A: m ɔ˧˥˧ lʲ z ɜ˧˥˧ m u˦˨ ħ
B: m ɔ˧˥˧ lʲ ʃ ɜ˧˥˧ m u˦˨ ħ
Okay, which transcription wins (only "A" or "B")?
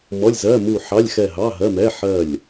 A